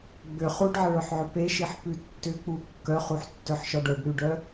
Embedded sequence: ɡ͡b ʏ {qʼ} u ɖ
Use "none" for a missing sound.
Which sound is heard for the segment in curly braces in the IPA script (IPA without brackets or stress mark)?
χ